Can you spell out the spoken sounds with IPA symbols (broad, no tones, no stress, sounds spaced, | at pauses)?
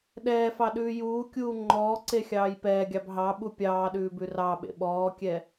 ɗ ɛː f ɑ ɗ ʉː j uː kʲ uː ŋ͡ǃ ɔː ǀ e xʲ ɑː j p ɛː ɡʲ ɑ b ɦ ɑ ɓ u pʲ ɑː ɗ ʉː b ʉ r ɑ ɓ ḛ ɓ ɔː kʲ ɛ